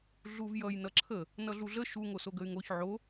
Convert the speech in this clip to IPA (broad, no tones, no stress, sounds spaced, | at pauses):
ɮ u v j ʌ j n ʌ ǁʰ ə | n ʌ ɮ u ɮ ə ʃ u ŋ o s o ɡ ə y̯ ŋ o ç ʕ o